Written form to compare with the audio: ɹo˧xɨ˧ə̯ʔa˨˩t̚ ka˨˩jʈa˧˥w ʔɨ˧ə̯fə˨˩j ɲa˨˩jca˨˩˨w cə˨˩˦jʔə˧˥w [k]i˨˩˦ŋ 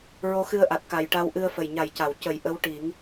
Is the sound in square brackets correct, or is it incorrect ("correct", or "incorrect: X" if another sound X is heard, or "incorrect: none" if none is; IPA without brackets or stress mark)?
incorrect: ʈ